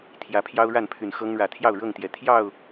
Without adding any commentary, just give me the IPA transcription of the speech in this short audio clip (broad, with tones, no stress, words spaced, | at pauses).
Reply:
t̪ʰjä˨˦pʰjɑ˦ʊ̯ɻa˥˨n pʰy˨˩nxɤ˦ŋ ɻä˨˩t̪ʰjɑ˥˨ʊ̯ ɻɤ˥˨ŋt̪jɛ˨˩ t̪ʰjɑ˥˨ʊ̯